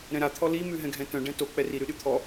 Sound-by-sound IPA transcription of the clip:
ɾ ɛ̃ ɾ a t̪ʰ ɔ l i m ʉ ɦ ɛ̃ ɡʱ ɛ̃ t œ̃ ɖ ɛ̃ t o k͡p ɛ r i ɾ ʉ ɗ ʉ t̪ʰ ɔ

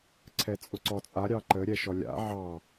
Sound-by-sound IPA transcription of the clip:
ǀʰ ɛ t͡sʼ ʊ ǀ ɔ t͡sʼ a ɾʲ ɑ ǃ ə ɾʲ ɛ ʃ ɔ lʲ a̰ ʕ ɑ

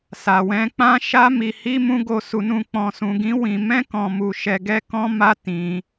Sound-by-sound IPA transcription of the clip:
s a˨ w ɛ̃˧ k͡p ã˦ ʃ a˦ m i˧ h i˦ m ũ˦ ɡ o˧ s u˧ n ũ˧ k͡p ɔ̃˧ s ũ˧ ɡ ĩ˦ w ĩ˧ m ɛ̃˦ k ɔ̃˧ m u˧ ʃ ɛ˧ ɡ ɛ˦ k ɔ̃˦ m a˦ t ĩ˧

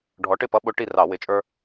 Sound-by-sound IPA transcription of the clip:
ɖʱ ɔ˨˥ ʈ ɪ˥˨ p ʌ˦ ɓ ʊ˦ ʈ i˥˨ r ɑ˧˩˧ w ɪ˨˥ t͡ʃʼ ə˞˦

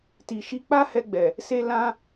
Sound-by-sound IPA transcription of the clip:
t i˨ ʃ i˧ k͡p a˦ h ɛ˧ ɡ͡b ɛ˨ | s e˧ l ã˧

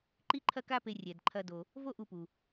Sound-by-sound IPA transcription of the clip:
ǃ i˥ ǃʰ ɐ˥ k a˥ p e˧ rʲ ɛ˩ d ǃʰ ɐ˧ d o˩ | v o˥ ʔ u˧ p u˩

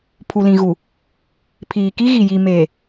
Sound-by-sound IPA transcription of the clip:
pʰ u˨ l ĩ˨ ɣ u˨ | pʰ iː˨ k i˦ ɣ i˨ j i˨ m eː˨

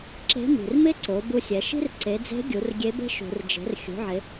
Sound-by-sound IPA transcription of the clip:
ǁ e̤˧˥ m i̤˩ r m ɪ˥ ǀ o˩˧ b u˧ sʲ ɛ˩˧ ʃ i̤˥ r ǀ e˩˧ d͡z e̤˧˥ ɡʲ u˩˧ r ɡʲ e˧˥ b e̤˥ ʃ ṳ˩ r d͡ʒ e̤˩˧ r xʲ ṳ˩˧ ʕ ɪ˩˧

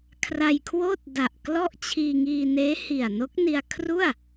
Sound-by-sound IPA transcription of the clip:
kʰ r a˧ j kʰ w oː˥˩ t̚ d a˨˩ ʔ k l ɔ˥˩ ʔ t͡ɕʰ iː˧ ŋ iː˧ n eː˦˥ h i˨˩ a̯ n o˦˥ k̚ n i˧ a̯ kʰ r u˥˩ a̯

